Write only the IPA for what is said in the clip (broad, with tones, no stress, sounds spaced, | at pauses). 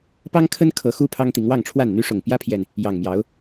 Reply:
p ɑ˦ ŋ kʰ ə˦ n kʰ ɤ˨˦ x u˦ pʰ ɑ˦ ŋ t̪ i˨˦ ŋ w ɑ˥˨ ŋ ʈ͡ʂʰ w a˥˨ n n̪ y˦ ʂ ʊ˨˩ ŋ p j ä˦ pʰ j ɛ˨ n | j ɑ˨˩ ŋ m j ɑ˨˦ ʊ̯